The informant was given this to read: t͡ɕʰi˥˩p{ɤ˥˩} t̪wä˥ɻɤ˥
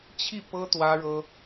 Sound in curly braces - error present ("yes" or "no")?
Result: yes